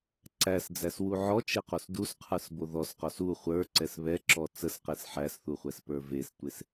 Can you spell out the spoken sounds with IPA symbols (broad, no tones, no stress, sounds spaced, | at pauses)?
ǀ æ s d͡z æ s w u ʕ ɔ t͡ʃ e q o s d u s qʰ ə˞ s b o ð ɔ s q ɔ s u χʷ ə˞ ǀ ɛ s β ɛ ǁ ɔ t͡s ə s q e s ħ æ s θ u χʷ ɛ s p ə˞ v e s tʷ e s